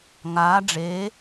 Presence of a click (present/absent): absent